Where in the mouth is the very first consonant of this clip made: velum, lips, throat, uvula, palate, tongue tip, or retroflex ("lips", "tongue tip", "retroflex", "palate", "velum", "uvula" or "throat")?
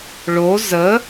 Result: retroflex